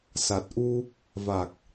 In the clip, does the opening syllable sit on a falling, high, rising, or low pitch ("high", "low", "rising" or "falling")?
low